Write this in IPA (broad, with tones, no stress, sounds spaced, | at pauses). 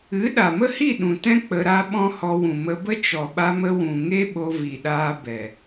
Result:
ɨ˨˦ ɗ a˨ m ə˦ h i˦˨ ɗ ũ˨ t ɛ̃˦ k͡p ə˧ ɾ a˦ ɓ ɔ̃˦ h ɔ˧ w ũ˨ m ə˧ b ə˦ t͡ʃ ɔ˨ ɓ a˧ m ə˧ w ũ˨ ŋ e˦ ɓ o˧ v i˨ ɗ aː˧ b ɛ˨